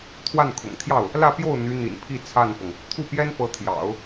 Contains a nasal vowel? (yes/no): no